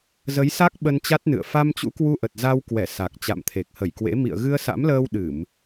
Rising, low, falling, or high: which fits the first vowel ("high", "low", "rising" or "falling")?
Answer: rising